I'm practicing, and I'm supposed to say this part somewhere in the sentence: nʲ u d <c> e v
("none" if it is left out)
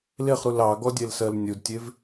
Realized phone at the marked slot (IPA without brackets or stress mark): tʲ